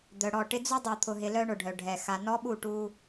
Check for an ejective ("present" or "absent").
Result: absent